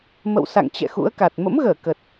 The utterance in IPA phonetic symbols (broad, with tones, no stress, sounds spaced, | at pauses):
m ə̰˧˨ w s a̰˧˨ ŋ t͡ɕ ɛ̰˧˨ x ṵ˧˥ ə̯ k a˨˩ t̚ m ə̰˧˥ m ɣ əː˧˩ k ə˨˩ t̚